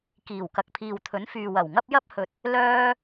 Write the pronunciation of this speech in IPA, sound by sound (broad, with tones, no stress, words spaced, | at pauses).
kiː˨˩wkɐ˨k̚ pʰiː˨wt̪ʰɵ˨˥nfyː˨ wɐ˨˩wŋɐ˥p̚jɐ˥p̚ hɵ˨t̚ | lœː˥